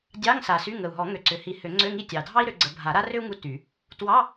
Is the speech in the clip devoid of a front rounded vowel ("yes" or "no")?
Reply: no